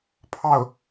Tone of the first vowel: falling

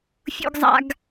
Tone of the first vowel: low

